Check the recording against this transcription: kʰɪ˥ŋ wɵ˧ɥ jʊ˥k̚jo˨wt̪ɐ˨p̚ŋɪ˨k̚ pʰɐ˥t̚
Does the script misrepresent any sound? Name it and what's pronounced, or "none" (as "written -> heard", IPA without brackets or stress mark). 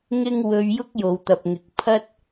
kʰ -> ŋ